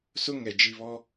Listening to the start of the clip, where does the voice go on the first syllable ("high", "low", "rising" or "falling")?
high